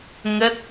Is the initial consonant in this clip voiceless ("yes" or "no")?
no